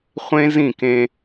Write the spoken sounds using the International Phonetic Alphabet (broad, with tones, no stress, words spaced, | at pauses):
χʷẽ˦ zĩ˦˨kẽ˦